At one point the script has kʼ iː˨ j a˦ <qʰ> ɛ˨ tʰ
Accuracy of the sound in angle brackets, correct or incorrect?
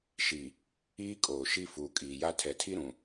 incorrect